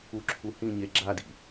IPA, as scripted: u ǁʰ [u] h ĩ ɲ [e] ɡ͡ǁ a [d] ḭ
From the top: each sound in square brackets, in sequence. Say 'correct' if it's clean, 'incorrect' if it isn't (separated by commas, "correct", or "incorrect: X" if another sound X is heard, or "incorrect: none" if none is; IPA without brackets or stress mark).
correct, correct, correct